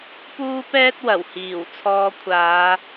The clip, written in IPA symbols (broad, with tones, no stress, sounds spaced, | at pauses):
p uː˥ p ɛː˥ t̚ w ɐ˨˩ w h iː˨˩ w t͡sʰ ɔː˧ kʷʰ aː˨˧